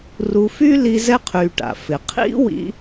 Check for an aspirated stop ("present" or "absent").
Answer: present